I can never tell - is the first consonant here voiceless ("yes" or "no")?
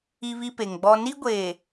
no